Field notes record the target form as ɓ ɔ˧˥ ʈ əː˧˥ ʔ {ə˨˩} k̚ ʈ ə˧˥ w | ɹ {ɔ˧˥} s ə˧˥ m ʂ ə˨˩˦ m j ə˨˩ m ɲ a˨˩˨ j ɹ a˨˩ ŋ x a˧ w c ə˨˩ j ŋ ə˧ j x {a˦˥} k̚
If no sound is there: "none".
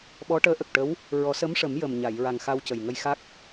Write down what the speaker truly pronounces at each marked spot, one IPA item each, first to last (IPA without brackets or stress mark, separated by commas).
ə˨˩, ɔ˨˩˦, a˦˥